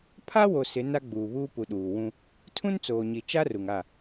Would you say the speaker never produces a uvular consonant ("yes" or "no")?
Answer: yes